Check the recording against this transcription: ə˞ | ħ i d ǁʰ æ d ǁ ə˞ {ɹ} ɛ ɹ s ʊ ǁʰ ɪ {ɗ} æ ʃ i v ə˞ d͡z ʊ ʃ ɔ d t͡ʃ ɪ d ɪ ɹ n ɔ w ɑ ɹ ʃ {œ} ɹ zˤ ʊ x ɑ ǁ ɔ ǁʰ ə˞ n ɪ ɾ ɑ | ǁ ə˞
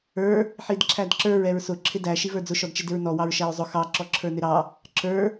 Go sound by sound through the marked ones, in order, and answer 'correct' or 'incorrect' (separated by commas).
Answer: correct, incorrect, incorrect